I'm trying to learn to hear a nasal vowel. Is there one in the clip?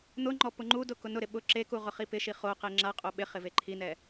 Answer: no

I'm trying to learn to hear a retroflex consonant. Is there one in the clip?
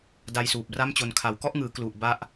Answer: no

